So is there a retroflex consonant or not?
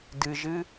no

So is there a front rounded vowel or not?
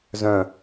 yes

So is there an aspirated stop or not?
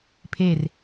yes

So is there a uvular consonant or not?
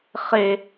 yes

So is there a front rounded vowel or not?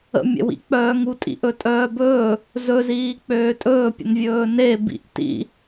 yes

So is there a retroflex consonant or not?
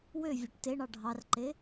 yes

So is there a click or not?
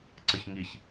yes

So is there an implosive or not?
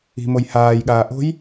yes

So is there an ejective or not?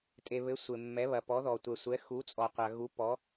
yes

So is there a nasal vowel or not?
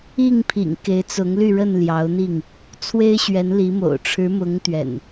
no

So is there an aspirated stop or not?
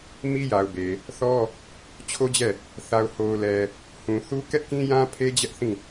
yes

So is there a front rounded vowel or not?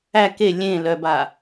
yes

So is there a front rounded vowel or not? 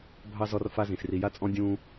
no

